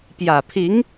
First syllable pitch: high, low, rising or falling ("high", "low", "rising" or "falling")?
low